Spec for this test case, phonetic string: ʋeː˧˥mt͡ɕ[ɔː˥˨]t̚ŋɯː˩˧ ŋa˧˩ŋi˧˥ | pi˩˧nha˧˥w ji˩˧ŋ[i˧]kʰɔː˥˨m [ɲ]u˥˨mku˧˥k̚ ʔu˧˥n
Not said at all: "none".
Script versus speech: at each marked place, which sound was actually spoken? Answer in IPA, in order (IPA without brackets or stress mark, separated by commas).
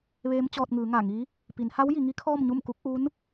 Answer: ɔː˧, i˧˥, ɲ